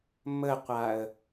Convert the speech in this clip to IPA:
m ə qʷ a ə̯

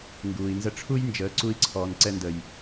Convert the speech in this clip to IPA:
ŋ ɡ uː˨ i̯ n z ə˦ ʈ͡ʂʰ u˦ j n d͡ʒ əː˨˦ ǀ u˧ i̯ ǀʰ ɔː˨ n ǀ ɛ˧ n d ə˨ j

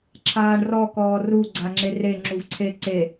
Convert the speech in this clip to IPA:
ǁʰ aː ɳ r ɔ k ɔː r u ɡ͡ǀ a ŋ͡ǁ e r e ŋ͡ǁ u v ǀʰ e ǀ e

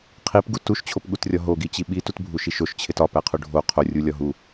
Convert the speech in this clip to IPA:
qʰ i p ɡ u t u ʃ t͡ɕʰ o p ɠ u t rʲ ɒ ɦ o ɡ i t͡ɕ i ɓ i t u t bʱ u ʃ i ʃ o ʃ t͡ɕʰ e t ɒ p æ qʰ u ɖʱ o qʰ o rʲ u lʲ ɒ ɦ u

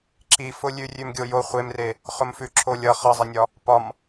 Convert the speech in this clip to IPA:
ǁ i f ʊ lʲ ʉ rʲ ʉ m ɡʲ o j o χʷ e m r e | χ ʊ m f ʉ ǁʰ o lʲ ʌ χ ʌ zˤ i nʲ ɒ | p ɒ m

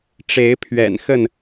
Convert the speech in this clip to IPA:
ʈ͡ʂ e˨˦ ɪ̯ pʰ ɥ ɛ̰˨˩ n x ə˥˨ n

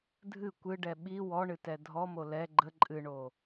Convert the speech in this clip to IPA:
dʱ ɨ kʷ ɨ ɖ ɛ ɓ i w ɔ ɳ ɨ t ɛ dʱ ɔ m o l ɛ ɡ͡ǃ ə ǃʼ ɨ ɳ o

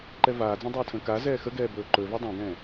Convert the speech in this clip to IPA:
ǃ ɛ v aː d͡z ɛ̃ dˤ ɵː tʰ ə̃ː k a z ɛː x ə ɡ ɛː b ɵː ǃ ɵ v ɛ dˤ ɛ̃ ɡ ɛ̃ː

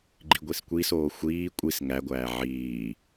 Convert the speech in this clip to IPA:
ɡ͡ǃ i ɡʷ i s kʷ i s oː xʷ iː kʷʼ i s ŋ æ ɡʷ æː ʕ iː

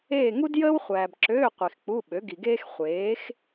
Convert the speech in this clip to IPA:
eː˦˨ ŋ u˥ d j əː˥ w χʷ æː˨ b ǁ øː˧˥˧ qʷ i˨ x k͡p u˧˥˧ ɓ ø˩˥ ɡ i˨ ɡ eː˥ x χʷ eː˩˥ x

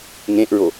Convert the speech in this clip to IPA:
ŋ ẽ ʔ ɹ o

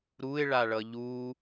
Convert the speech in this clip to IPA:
ɾ u ɪ̯ ɭ a ɭ ʌ ʎ u

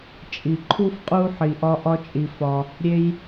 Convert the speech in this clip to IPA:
t͡ʃʼ i˨ ǃʰ u˧ f qʼ u˧ ħ i˧ ʔ ɒ˦ ʔ ɒ˦ t͡ʃʼ i˧ f ɒ˧ | ɾʲ e˦ j

